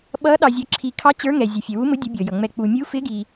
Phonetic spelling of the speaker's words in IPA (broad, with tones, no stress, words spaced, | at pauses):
ɓʌ˧˥ ɗɑ˨zʲʌ˨ ǁʰi˨kʰɑ˧˥ t͡ɕə˞˧˥ŋɛ˨ zʲɛ˨fʲɛ˨wu˧˥mʊ˧˥ dʲʊ˧˥bʲɔ˨jʌ˨ ŋ͡mɛ˨k͡pu˨mʲu˧˥ fɪ˧˥ɡi˨